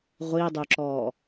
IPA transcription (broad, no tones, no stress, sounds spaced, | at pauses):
ʁʷ i dˤ ø ǁ ɔː